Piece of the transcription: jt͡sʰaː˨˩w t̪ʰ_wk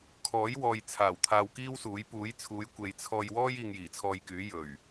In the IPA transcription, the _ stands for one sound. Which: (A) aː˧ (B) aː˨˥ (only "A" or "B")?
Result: A